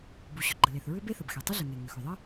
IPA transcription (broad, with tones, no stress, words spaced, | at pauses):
bu˩ɕʏ˩ ɡ͡ǃə˩le˩θɹʏ˥ be˥θə˩bxe˩ tˤʏ˥ɮə˩ŋe˩ ŋʏ˩xʏ˩ðˤə˥